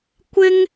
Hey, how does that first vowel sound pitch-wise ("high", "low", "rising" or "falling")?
high